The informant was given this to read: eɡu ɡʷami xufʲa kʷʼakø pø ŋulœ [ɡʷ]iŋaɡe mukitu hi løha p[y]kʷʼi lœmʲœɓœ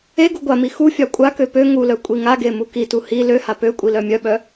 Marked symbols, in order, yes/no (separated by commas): no, no